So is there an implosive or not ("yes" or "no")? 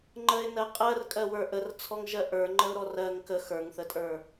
no